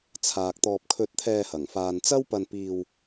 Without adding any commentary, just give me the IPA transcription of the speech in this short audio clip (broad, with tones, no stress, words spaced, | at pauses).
t͡sʰaː˨k̚t̪ɔː˧p̚ kʰɵ˧t̚t̪ʰɛː˧hɐ˨˩ŋ faː˨nt͡sɐ˥wpɐ˧npiː˧w